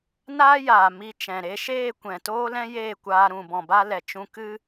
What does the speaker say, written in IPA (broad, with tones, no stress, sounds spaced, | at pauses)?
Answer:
n aː˦ j aː˨ m i˧ t͡ʃ ɛ̃˨ ɾ e˧ ʃ eː˦˨ kʷ ɛ̃˨ t oː˦ l ɛ̃˦ j eː˦˨ kʷ aː˧ ɾ ũ˨ b ɔ̃˨ b a˧ l ɛ˨ t͡ʃ ũ˧ k ɨ˦